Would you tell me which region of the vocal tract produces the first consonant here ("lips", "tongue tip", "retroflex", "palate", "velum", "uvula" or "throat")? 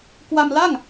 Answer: velum